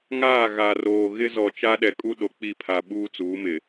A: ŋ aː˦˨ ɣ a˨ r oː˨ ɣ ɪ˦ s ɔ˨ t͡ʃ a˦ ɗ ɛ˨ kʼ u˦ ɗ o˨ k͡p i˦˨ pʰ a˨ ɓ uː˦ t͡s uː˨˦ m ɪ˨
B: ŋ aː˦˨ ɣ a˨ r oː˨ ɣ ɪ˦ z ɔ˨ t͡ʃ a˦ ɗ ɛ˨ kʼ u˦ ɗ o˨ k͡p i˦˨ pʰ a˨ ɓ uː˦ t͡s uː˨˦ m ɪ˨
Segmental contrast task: B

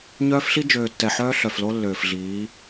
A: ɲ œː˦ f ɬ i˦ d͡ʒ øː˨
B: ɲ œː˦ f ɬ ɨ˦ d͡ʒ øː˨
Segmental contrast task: A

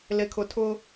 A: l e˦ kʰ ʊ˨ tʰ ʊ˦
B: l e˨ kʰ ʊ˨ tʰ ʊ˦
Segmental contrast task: B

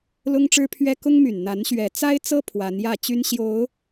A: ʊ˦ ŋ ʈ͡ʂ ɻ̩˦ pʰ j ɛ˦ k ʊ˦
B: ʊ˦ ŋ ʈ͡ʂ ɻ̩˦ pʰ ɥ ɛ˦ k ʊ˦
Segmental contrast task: B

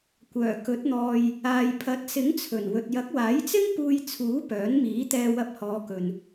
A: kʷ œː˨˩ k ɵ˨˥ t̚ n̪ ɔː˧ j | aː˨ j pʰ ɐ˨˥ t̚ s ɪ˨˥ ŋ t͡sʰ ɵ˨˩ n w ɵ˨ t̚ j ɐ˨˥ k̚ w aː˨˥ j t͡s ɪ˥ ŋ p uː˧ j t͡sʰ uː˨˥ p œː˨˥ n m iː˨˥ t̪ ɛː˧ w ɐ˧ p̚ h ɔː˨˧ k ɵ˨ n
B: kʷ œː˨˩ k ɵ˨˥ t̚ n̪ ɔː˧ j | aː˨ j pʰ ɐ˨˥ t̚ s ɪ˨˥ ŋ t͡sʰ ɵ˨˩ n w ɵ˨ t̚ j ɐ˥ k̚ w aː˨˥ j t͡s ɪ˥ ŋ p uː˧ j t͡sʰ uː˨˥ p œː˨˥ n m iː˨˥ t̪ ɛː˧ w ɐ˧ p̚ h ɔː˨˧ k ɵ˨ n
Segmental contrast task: A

